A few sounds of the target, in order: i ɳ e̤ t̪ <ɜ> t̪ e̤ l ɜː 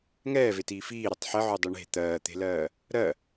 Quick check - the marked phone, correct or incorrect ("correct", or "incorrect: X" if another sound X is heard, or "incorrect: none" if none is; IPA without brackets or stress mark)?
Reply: incorrect: ɜː